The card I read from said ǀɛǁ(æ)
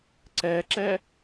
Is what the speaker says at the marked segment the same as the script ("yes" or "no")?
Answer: no